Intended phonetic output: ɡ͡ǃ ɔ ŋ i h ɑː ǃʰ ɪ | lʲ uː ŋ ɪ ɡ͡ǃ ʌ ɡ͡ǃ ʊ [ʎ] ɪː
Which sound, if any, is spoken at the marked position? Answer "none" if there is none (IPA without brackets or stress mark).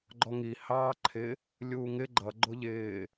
ʎ